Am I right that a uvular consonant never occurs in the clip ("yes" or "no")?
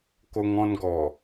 yes